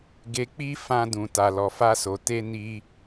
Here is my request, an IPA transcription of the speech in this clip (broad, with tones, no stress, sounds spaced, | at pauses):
ɡ e˨ k͡p i˧ f ã˧ d ũ˨ t a˨ l ɔ˨ f a˧ s o˨ t e˧ n i˧